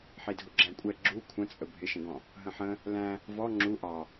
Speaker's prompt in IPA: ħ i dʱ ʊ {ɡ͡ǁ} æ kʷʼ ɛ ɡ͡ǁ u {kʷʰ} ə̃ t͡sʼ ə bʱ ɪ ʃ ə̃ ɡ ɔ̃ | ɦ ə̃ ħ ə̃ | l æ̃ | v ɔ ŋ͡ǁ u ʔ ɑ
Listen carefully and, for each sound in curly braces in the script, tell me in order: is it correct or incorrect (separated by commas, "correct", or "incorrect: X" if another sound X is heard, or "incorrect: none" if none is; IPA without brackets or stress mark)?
correct, correct